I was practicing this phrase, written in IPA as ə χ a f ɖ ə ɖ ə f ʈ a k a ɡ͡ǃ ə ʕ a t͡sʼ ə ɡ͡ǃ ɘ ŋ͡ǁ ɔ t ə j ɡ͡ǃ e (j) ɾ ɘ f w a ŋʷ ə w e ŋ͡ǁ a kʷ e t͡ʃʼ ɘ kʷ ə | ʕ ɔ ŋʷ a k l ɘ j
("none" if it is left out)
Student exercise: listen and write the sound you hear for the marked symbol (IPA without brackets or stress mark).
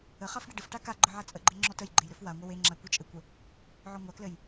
j